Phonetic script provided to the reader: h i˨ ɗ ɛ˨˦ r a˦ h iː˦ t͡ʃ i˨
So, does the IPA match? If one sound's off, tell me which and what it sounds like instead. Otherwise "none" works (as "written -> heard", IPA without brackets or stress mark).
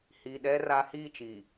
none